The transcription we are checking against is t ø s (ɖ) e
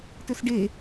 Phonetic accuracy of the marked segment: correct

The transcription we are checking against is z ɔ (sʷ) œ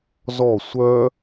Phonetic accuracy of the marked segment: correct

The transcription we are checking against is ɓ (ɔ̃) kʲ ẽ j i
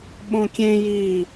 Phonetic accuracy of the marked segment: incorrect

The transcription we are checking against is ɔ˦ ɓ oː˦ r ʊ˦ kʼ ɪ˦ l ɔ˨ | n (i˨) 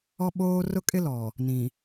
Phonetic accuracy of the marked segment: incorrect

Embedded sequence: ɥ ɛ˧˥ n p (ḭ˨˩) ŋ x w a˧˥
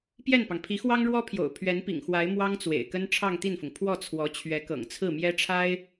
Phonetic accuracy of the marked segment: correct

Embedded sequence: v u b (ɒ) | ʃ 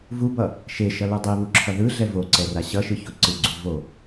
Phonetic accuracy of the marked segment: incorrect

